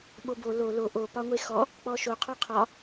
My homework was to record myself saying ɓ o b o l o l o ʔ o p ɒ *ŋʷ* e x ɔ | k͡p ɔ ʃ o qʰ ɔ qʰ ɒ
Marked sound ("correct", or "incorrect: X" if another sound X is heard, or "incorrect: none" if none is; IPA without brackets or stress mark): correct